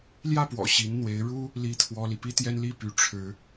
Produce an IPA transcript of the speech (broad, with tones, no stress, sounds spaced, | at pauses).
l j ä˥˩ p w ɔ̰˨˩ ɕ i˧˥ n n̪ w e˧˥ ɪ̯ ɻ u˥ | l i˥ t̪ʰ w ɔ˥ l i˨ p i˥ t̪ j ɛ˥ n l i˥˩ p y˧˥ ʈ͡ʂʰ ɻ̩˧˥